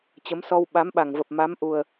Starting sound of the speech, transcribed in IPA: t͡ɕ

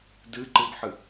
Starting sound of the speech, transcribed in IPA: d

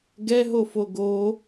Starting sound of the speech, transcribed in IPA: ɡ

